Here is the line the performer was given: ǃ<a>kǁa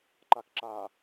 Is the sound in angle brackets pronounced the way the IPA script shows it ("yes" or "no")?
yes